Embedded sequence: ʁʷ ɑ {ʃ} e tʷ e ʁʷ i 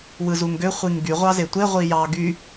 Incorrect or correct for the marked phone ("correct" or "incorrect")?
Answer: incorrect